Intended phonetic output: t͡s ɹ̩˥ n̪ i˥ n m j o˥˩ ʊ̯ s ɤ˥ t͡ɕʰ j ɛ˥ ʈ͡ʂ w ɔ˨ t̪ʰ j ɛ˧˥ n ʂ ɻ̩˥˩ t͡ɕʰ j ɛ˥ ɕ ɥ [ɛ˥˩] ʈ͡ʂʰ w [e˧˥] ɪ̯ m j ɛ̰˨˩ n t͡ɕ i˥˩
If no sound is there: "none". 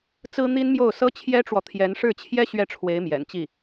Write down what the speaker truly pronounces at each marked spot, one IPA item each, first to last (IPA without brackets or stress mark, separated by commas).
ɛ˥˩, e˧˥